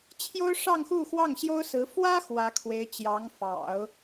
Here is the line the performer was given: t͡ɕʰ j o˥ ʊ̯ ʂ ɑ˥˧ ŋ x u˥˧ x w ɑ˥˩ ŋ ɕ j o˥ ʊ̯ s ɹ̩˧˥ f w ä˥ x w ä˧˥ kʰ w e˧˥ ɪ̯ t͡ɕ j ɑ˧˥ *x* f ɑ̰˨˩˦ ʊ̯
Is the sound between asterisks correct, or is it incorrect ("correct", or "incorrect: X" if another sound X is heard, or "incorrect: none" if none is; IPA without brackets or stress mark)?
incorrect: ŋ